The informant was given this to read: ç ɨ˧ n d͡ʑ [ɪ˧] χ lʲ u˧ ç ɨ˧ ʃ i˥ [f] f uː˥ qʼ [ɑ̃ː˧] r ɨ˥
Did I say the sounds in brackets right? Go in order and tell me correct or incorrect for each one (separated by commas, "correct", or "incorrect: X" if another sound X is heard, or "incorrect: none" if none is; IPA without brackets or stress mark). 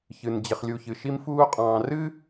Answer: correct, incorrect: m, correct